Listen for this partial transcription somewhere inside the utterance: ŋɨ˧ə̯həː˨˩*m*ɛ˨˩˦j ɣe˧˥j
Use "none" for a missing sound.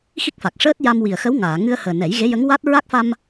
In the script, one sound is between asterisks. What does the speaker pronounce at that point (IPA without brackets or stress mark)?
n